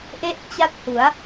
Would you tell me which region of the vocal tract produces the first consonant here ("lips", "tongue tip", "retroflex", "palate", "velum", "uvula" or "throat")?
throat